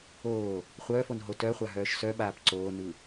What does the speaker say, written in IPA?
oː | χʷ œː f o n ɦ o t œ χʷ a ɦ œː ʃ s œ ɓ aː p ǀ oː n ɯ

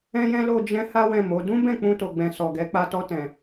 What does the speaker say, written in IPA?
ɛ̃˧ j ɛ̃˧ l o˨ d͡ʒ ɛ̃˨˦ h a˦ w ɛ̃˦˨ m o˨˦ d ũ˦ b ɛ̃˦˨ k͡p ũ˧ t o˨ ɡ͡b ɛ̃˨ s ɔ˨ ɡ ɛ˨˦ k͡p a˧ t ɔ˧ t ɛ̃˨

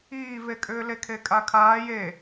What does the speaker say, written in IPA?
iː v e kʼ ʏː l e kʰ e kʼ a kʰ aː j e

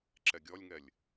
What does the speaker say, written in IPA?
ǁ ɛ ɡʲ ɔ lʲ ŋ ɛ lʲ

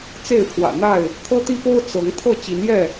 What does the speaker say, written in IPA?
t͡s e˥˨ ɪ̯ pʰ w ä̰˨˩ n̪ a˥˨ ɪ̯ | t̪ʰ ɤ˦ t̪ i˦ p o˦ ʊ̯ t͡s ɤ˨˦ ŋ t̪ʰ ɤ˥˨ t͡ɕ i˨˦ n j ɛ˥˨

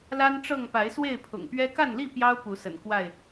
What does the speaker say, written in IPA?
l a˦ n ʈ͡ʂ ɤ˥˨ ŋ p a˨˦ ɪ̯ s w e˥˨ ɪ̯ pʰ ʊ̰˨˩ ŋ p ɥ ɛ˦ k a˥˨ n l i˥˨ p j ɑ˦ ʊ̯ p u˨˦ s ə̰˨˩ n k w a˥˨ ɪ̯

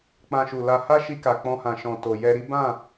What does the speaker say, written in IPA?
k͡p ã˧ ʃ u˨ l a˧ h a˦ ʃ i˧ k a˨ k͡p ɔ̃˧ h ã˨ ʃ ɔ̃˨ t o˨ j ɛ˧ ɾ i˦ b ã˦˨

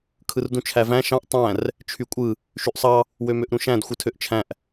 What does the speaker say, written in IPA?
kʰ ɯ r d ũ t͡ʃʰ æ v æ̃ ʃ ɑ̃ ʔ tˤ æ̃ r | t͡ʃʰ y kʷʼ ɯ | ʃ y ʔ sˤ ɑ | w ø m ø ʔ ɾ ũ ʃ æ̃ d xʷ ɯ tʰ ø ʔ t͡ʃʰ æ̃ ʔ

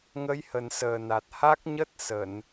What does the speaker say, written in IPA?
ŋ ə˨˦ j h ə˨˩ n s əː˨˩ n a˨˩ t̚ h a˦˥ k̚ ɲ ə˦˥ t̚ s ə˧˩˨ n

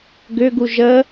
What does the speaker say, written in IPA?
ɡ ʏ ɡ u ʒ ə

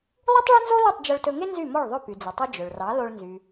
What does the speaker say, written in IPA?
lˠ u˥ tˤ ɭ ɵ˥ n z o˥ l u˥˩ tˤ d͡ʒ ɵ˧ ɭ t ɵ˧ ŋ e˥ n z y˥˩ m ɔ˥˩ ɭ ðˤ ɵ˥˩ p y˩ d͡z ɵ˩ tˤ œ˧ d͡ʒ ɵ˩ ɭ r ɑ˩˥ l o˧ ɭ n z y˩

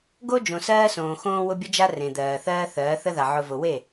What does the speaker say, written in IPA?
ɡ o˦ d͡ʒ õ˨ s ɜː˦ s õː˨ x õː˦ w ʊ˦ bʲ ə˦ d͡ʒ a˦ r ẽ˨ d̪ ɜː˨ θ ɜː˦ θ ɜː˨˦ θ ə˦ ð a˨ ʕ ʊ˨ v ʊ˨ w e˦˨

